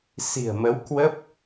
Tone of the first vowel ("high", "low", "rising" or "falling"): low